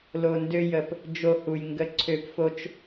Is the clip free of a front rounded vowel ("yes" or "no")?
no